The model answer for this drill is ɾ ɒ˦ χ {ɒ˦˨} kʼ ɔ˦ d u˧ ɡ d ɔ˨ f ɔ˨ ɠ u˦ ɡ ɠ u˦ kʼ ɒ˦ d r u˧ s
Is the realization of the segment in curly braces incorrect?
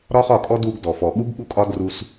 no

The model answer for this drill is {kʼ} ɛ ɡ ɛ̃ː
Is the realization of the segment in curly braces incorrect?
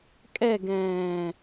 no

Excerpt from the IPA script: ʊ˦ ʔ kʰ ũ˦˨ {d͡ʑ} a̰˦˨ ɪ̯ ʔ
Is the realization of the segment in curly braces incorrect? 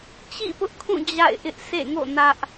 no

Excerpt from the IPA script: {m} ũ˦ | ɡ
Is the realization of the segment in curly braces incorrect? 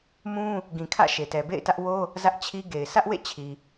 no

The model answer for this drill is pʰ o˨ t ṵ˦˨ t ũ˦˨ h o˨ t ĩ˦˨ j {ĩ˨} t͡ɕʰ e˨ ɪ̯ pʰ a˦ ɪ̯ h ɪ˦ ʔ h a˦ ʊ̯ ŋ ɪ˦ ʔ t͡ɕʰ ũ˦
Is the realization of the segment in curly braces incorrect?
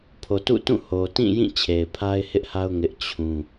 yes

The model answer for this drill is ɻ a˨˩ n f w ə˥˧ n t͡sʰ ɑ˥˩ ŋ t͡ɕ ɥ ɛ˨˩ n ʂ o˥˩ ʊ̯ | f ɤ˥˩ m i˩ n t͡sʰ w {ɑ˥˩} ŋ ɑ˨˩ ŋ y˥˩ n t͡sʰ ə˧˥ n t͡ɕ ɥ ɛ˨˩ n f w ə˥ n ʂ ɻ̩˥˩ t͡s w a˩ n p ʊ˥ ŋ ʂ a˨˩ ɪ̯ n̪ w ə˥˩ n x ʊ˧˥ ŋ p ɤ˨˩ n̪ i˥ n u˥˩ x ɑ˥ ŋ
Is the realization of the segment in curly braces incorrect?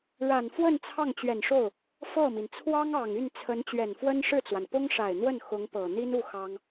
yes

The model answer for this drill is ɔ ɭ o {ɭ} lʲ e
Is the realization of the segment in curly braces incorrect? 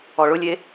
yes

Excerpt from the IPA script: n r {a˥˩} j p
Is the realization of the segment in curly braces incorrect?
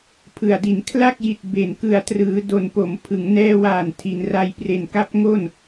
yes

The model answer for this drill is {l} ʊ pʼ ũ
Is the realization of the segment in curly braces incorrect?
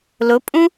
no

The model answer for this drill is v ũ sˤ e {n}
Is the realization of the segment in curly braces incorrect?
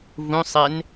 no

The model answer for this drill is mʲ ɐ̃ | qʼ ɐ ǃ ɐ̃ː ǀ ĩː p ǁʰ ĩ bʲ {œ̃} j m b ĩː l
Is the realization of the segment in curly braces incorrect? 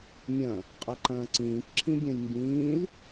no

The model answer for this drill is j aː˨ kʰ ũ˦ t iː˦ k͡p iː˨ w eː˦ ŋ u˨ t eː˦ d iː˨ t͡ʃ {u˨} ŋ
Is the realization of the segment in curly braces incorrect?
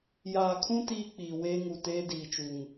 no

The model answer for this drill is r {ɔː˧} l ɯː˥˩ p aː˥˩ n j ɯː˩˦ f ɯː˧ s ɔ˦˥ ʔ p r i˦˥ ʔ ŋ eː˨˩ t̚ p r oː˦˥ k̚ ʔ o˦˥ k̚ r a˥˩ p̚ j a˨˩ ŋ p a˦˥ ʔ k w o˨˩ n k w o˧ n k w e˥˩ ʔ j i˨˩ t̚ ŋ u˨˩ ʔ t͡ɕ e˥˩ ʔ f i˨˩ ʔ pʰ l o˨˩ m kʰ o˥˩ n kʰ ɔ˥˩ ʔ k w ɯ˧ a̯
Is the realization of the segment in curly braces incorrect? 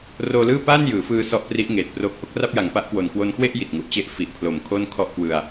yes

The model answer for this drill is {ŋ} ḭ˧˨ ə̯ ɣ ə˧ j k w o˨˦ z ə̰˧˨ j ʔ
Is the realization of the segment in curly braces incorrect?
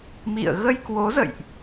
yes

